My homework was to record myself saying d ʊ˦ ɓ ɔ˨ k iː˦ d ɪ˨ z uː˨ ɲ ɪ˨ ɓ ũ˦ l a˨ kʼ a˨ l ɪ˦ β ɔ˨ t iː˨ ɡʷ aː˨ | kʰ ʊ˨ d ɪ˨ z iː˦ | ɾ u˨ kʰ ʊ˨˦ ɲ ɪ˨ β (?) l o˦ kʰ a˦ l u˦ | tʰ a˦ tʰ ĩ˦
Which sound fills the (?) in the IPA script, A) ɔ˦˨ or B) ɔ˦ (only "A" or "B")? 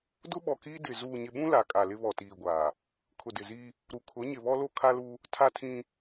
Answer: B